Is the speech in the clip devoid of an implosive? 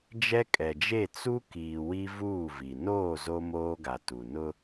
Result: yes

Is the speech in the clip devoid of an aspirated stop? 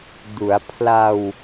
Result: no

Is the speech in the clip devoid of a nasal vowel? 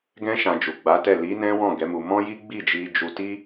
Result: no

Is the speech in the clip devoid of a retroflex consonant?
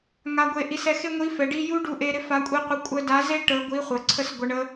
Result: no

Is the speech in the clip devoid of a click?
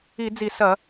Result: yes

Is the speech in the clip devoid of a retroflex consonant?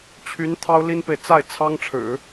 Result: no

